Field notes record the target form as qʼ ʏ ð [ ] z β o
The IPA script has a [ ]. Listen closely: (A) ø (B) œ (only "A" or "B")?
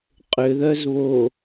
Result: B